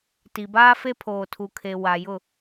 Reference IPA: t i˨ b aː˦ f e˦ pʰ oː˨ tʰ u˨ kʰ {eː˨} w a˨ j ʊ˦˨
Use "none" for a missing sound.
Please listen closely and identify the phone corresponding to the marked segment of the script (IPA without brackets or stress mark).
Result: e˨